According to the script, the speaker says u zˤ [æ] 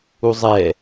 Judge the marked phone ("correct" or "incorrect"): incorrect